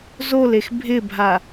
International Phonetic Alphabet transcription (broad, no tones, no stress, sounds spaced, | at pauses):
z o l e x bʱ ɪ bʱ a